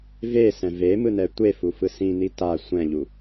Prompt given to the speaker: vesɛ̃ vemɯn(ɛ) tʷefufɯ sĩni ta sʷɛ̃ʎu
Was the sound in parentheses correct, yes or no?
yes